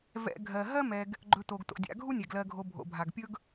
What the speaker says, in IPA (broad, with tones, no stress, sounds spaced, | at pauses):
v ɛ̰˨ ɡʱ ɜ˩ ɦ ɜ˥ m ɛ˨ ɡ | ɡ͡ǃ ɵ˨ t o˩ ɡ t o̰˩ dʲ a̰˨ ɡʱ u˥ nʲ ɛ˩ ɡ l ɜ˨ ɡʱ o˨ bʱ o̰˩ bʱ a˩ ɡ pʲ ɵ˥ ɡ